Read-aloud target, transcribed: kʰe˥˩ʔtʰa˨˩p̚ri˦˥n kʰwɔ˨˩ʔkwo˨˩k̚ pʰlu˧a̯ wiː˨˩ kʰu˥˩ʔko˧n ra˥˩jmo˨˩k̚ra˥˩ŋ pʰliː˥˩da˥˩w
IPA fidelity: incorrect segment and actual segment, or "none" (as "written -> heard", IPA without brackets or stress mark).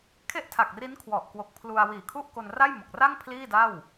p̚ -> k̚